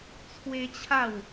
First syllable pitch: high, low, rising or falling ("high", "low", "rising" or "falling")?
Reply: high